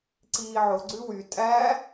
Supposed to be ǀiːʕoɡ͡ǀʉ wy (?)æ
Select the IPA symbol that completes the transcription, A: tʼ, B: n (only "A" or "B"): A